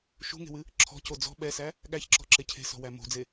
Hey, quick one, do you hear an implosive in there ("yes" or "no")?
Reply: yes